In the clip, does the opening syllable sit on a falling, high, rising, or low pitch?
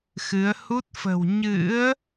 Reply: rising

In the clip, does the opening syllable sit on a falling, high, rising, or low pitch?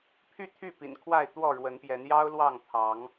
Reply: falling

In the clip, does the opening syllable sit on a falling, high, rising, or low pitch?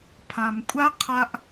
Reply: low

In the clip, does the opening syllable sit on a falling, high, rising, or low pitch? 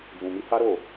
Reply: low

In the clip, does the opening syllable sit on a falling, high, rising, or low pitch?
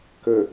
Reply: low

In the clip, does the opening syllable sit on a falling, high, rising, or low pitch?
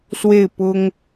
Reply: falling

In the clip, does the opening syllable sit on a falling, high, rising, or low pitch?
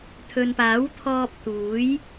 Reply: low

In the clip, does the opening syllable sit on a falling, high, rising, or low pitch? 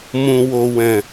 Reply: low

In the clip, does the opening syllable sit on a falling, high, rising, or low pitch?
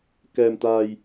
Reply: low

